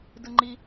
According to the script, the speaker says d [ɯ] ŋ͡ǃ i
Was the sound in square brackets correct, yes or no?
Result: yes